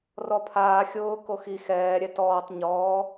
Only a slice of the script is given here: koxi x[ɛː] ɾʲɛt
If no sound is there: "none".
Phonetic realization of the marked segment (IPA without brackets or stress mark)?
ɛː